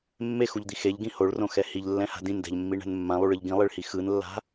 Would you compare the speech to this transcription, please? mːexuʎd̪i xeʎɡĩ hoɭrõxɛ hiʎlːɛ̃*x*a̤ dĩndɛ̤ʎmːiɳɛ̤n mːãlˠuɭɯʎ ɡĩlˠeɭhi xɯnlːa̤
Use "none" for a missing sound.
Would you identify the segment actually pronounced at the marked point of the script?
h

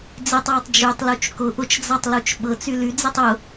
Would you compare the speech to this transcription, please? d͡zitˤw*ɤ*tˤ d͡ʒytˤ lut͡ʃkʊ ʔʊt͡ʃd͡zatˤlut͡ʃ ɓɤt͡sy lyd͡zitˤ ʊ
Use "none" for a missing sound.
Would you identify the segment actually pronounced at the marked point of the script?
ɤ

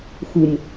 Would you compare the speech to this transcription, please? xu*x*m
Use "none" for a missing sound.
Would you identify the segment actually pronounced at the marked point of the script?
none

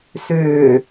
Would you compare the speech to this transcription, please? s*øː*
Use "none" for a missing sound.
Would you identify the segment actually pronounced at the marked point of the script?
øː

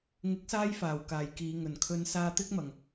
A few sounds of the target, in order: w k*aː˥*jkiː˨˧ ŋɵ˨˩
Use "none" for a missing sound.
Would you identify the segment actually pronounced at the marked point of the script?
aː˨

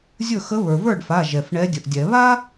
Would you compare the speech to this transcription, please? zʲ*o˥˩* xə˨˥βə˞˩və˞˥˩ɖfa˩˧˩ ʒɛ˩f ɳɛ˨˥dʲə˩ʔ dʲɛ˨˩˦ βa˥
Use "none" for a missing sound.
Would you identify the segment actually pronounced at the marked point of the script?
ɵ˥˩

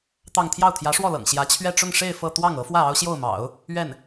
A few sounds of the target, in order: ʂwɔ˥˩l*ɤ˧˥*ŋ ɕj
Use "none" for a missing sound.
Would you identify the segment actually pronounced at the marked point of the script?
ɤ̰˨˩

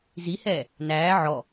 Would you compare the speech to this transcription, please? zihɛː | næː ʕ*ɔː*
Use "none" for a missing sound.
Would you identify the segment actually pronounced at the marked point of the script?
ɔ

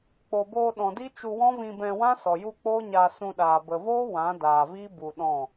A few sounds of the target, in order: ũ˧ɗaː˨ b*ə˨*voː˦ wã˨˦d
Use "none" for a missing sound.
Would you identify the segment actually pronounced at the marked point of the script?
ə˨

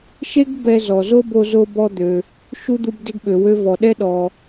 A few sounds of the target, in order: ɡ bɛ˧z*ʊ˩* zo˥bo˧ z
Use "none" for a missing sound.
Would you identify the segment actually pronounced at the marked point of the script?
ɔ˩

